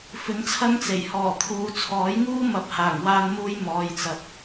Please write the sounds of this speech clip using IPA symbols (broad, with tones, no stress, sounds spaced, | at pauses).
f ɪ˨˥ ŋ t͡sʰ ɐ˥ ŋ t͡s e˨˩ j h ɔː˨˩ t̪ʰ uː˨ t͡sʰ ɔː˨˥ j ŋ uː˥ m ɐ˨˥ p̚ h aː˨˩ ŋ w aː˧ n m uː˧ j m ɔː˨ j t͡s ɐ˨ p̚